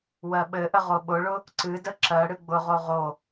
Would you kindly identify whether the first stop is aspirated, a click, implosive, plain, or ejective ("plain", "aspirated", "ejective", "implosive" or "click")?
implosive